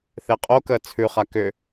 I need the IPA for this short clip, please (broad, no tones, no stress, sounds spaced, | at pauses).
θ e qʼ o k əː t͡sʰ ʉ χ a k ʏ